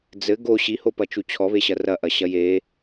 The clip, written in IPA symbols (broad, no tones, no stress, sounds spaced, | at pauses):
d͡z ɘ ɡ o ɕ i h o p ɐ t͡ʃ u t͡ɕʰ ɔ β e ɕ ɐ r ɐ ʔ ɐ ɕ ɐ j e